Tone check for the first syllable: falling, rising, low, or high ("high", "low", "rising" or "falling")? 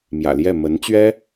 low